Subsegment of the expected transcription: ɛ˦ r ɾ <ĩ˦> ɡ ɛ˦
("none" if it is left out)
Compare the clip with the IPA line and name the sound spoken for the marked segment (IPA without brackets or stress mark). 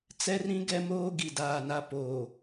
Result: ĩ˦